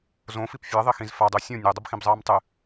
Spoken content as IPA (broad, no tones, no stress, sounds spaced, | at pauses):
z õ f i p fʲ e ðˤ i x ĩ z f a dˤ ʉ sʲ õ nʲ e dˤ ɐ b x ĩ b zˤ ɐː m tˤ ɨ